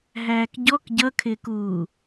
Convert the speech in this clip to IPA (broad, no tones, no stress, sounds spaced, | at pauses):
ɦ æː k ɟ ɔ k ɟ ʌ kʰ ɪː k uː